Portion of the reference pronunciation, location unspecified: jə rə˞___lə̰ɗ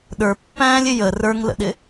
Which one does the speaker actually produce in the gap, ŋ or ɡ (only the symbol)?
ŋ